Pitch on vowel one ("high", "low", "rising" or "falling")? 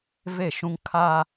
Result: falling